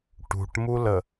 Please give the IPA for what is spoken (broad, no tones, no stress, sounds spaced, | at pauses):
ʈ ṳ ʈ m u l ə